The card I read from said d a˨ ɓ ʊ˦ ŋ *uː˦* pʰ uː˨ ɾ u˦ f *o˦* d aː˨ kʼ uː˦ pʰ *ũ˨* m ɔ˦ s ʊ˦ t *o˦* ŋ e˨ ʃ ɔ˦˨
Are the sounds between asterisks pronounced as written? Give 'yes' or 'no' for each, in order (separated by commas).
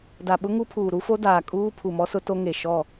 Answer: no, yes, no, yes